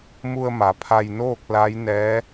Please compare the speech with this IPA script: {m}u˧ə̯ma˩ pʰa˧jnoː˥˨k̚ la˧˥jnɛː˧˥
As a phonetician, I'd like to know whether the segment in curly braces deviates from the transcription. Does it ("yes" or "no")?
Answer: no